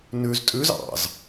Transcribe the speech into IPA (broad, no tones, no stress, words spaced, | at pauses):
nʉz tʼʉz ɑ̰z